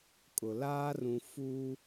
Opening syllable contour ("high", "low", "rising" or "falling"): low